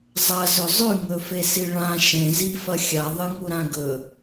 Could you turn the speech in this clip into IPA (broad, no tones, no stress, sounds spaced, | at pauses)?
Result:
zˤ ɐ z ɵ zˤ ʉ ŋ ɵ f e s i ɭ ã ʃ ẽ z i f ɐ xʲ a ðˤ ɨ ŋ u ɾ ã ɡ ɵ